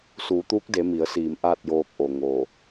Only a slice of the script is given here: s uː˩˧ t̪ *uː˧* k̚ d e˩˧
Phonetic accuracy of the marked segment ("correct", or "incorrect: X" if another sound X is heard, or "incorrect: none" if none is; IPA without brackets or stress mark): incorrect: uː˧˥